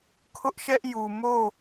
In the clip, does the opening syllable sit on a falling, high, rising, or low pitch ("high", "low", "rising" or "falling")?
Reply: high